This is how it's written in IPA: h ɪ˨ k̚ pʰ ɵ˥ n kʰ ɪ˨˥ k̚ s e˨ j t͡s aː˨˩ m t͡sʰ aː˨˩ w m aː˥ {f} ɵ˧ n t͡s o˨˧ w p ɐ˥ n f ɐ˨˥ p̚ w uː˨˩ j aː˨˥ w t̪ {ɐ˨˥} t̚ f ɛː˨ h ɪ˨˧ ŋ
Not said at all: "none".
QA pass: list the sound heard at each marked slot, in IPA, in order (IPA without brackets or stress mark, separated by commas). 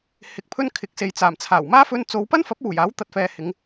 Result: f, ɐ˨